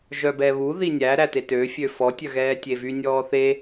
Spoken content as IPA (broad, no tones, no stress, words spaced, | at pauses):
ʒœbɛβu ðinʲæ ɾætetø fʲøfɔ tʲœɣɛːtʲevy nʲɔːθe